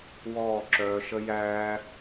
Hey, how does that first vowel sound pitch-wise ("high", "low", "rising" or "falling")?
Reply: falling